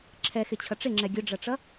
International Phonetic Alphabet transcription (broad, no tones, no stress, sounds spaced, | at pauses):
ǁʰ ɛ x ɪ t͡ɕʰ ʌ ʈ͡ʂ ɪ ŋ͡ǁ ɛ ɡʲ ʊ ɖ͡ʐ ʌ ʈ͡ʂ ʌ